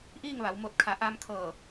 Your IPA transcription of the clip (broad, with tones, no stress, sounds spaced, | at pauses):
ʔ iː˥˨ ŋ ʋ a˩˧ w m o˧˩ t̚ kʰ a˩˧ ʔ a˧ m kʰ ɤː˧˩